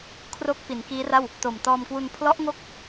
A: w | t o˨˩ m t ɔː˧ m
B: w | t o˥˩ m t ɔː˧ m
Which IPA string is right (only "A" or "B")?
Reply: A